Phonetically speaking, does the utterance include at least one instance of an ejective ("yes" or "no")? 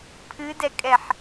yes